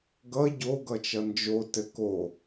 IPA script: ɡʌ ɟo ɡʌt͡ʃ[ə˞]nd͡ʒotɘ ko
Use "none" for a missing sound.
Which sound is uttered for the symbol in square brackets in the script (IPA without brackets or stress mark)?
ʌ